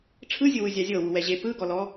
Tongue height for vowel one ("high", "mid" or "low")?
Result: high